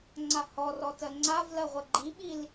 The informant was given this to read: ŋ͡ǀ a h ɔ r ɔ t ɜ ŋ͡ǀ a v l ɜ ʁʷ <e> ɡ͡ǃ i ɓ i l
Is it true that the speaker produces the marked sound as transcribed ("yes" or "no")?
no